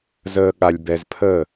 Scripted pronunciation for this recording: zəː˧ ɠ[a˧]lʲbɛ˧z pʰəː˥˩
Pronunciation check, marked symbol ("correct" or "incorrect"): correct